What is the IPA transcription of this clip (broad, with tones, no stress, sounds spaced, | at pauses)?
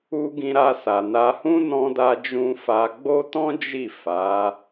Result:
u˧ ɡ ĩ˧ ɾ a˧ s a˨ n a˧ h ũ˦ n ɔ̃˧ d a˧ d͡ʒ ũ˧ f a˧ ɡ͡b o˦ t ɔ̃˦ d͡ʒ i˦˨ f a˨˦